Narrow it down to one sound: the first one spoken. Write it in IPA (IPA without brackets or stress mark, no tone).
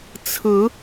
t͡sʰ